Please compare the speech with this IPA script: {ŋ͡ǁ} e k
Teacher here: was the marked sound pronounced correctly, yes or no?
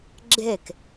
no